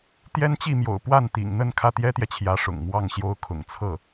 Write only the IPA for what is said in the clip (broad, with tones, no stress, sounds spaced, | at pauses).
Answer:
t̪ j ɛ˥ n t͡ɕ i˥˩ m j o̰˨˩ ʊ̯ p w a˥˩ n t̪ ḭ˨˩ ŋ n̪ ə˥˧ n kʰ ä˥˩ t̪ j ɛ˥ t̪ j ɛ˨ t͡ɕʰ j ä˧˥ ʂ ʊ̰˨˩ ŋ m w ɑ˥˩ ŋ ɕ j o˥ ʊ̯ kʰ ʊ̰˨˩ ŋ t͡sʰ ɤ˥˩